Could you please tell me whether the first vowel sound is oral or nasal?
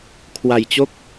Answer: oral